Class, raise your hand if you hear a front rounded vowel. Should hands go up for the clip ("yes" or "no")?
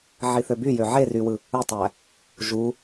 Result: yes